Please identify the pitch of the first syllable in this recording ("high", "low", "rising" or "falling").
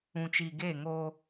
low